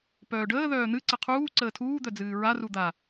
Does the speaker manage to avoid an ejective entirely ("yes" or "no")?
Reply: yes